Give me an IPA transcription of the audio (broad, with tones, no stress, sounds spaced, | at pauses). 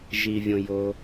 ʒ i˩ vʲ õ˩ j o˩